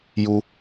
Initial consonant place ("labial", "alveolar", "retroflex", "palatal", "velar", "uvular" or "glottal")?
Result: palatal